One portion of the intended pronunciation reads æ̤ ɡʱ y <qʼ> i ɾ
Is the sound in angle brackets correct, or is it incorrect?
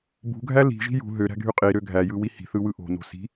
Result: correct